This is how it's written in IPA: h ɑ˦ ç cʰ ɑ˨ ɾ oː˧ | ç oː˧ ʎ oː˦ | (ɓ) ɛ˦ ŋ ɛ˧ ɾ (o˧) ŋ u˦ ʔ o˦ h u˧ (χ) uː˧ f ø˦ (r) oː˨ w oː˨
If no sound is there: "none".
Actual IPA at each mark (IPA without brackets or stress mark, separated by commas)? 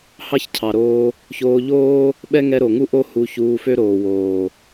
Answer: ɓ, o˨, ç, ɾ